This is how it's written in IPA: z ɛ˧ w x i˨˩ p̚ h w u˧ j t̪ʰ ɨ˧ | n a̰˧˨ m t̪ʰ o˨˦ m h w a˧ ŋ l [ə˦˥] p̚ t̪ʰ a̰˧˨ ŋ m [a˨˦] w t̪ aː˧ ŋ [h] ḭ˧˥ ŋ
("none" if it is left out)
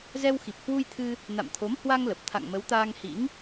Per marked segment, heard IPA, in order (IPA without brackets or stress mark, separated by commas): ə˨˩, ə˨˦, h